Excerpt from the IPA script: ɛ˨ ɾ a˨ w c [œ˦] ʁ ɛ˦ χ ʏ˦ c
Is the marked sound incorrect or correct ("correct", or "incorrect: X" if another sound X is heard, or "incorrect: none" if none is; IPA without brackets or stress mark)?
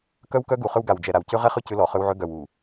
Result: incorrect: ø˦